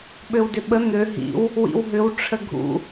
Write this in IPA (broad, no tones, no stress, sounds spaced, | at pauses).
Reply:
ɓ ø w d ø ɓ ə n̪ ø ɦ ḭ w | w ḭ w ɦ ʏ w ʈ͡ʂʰ ə ɡʱ ṵ